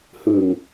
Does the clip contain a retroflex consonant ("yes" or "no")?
no